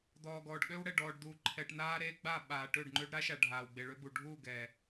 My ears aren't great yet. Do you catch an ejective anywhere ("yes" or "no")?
no